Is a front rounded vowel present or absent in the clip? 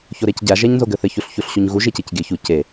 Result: absent